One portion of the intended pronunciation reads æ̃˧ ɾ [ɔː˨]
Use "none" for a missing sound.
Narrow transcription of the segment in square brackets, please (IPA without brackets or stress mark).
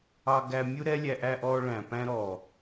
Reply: ɔː˨